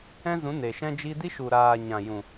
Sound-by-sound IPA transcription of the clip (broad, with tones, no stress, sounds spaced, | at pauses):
ɛ̃˦ z ũ˨˦ n e˨ ʃ ɛ̃˦ d͡ʒ i˦ d i˦ ʃ u˨ ɾ aː˨ ɲ ã˨ j ũ˨